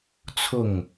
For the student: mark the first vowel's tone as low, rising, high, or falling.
falling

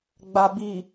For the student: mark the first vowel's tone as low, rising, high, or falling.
low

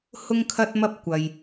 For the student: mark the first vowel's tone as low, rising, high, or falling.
high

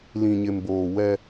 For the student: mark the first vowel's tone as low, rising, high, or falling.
low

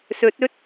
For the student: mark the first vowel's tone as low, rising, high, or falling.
rising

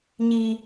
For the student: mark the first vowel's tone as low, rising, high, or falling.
low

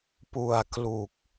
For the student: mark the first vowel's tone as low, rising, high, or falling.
low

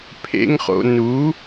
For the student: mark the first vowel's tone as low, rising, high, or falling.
high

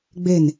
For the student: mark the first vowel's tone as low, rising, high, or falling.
falling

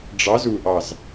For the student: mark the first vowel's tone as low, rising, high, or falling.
rising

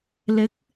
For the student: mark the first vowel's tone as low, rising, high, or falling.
rising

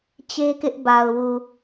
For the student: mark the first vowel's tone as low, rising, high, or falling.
high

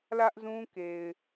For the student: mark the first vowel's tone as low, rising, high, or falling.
high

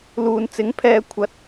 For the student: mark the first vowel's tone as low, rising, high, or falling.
low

